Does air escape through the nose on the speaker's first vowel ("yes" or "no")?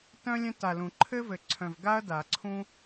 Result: yes